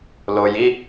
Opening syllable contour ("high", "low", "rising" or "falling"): low